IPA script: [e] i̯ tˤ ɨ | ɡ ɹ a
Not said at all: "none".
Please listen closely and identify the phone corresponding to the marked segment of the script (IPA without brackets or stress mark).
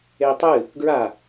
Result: e